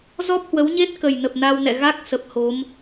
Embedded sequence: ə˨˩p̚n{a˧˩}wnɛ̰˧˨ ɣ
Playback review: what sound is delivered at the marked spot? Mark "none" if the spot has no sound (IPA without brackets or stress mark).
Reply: a˧